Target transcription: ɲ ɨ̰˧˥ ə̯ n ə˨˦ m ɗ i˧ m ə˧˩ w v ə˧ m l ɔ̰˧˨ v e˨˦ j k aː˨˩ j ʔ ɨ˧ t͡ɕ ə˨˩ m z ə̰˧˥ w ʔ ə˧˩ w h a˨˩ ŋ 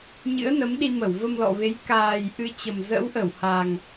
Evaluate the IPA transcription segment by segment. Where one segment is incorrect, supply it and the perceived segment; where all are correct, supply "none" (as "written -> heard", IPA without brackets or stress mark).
none